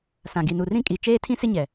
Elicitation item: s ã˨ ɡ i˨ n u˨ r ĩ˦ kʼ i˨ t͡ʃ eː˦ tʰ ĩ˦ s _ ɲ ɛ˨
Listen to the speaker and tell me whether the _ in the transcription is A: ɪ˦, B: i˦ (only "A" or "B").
A